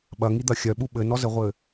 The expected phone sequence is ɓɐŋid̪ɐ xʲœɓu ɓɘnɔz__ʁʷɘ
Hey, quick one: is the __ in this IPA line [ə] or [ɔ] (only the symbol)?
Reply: ə